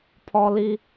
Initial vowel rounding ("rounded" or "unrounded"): rounded